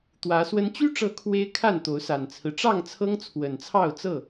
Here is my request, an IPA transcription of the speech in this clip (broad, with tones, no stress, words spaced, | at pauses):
t̪wä˨˦swə˦n t͡ɕy˦ʈ͡ʂɤ˨˦ kʰwe˦ɪ̯ kʰa˥˨nt̪o˨˦ʊ̯ sa˨˩nt͡sʰɹ̩˦ ʈ͡ʂɑ˥˨ŋt͡sʰɤ˦ŋ t͡sʰwə˨˩nt͡sʰɑ˥˨ʊ̯t͡sɤ˥˨